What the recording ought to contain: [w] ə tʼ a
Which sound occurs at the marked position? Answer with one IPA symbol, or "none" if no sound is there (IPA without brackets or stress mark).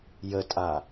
j